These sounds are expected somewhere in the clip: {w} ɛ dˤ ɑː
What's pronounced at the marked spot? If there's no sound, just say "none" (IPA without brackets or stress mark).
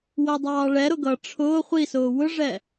w